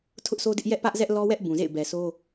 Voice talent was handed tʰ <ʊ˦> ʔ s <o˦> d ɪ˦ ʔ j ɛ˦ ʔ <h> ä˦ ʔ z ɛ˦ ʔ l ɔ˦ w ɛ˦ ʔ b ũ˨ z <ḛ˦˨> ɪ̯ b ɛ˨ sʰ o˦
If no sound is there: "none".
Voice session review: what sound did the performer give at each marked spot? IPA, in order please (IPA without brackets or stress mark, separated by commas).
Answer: ʊ˦, o˦, p, ḛ˦˨